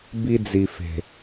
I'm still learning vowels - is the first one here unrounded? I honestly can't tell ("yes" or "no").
yes